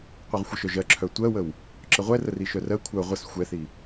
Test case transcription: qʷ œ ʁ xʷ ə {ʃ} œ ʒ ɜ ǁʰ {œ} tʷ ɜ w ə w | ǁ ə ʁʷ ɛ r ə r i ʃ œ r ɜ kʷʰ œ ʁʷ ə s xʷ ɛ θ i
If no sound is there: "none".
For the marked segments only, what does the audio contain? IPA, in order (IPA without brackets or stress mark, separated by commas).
ʃ, œ